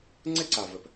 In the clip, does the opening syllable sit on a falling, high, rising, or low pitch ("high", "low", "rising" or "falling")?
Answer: high